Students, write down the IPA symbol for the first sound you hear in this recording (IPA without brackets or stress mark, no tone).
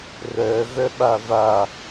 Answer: r